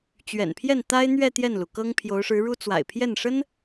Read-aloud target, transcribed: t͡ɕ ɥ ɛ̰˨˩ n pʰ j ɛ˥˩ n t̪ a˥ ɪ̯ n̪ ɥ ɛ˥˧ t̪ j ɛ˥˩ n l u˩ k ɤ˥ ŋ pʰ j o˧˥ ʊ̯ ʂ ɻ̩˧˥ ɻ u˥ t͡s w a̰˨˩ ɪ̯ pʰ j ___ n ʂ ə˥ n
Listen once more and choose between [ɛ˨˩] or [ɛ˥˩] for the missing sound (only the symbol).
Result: ɛ˥˩